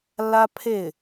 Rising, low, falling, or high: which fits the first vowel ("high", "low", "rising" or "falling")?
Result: high